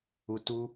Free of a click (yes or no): yes